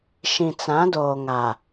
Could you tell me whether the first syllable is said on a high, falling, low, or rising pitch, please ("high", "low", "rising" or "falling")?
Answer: low